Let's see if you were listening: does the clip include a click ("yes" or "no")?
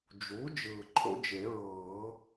yes